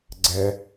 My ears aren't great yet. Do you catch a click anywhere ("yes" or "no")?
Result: yes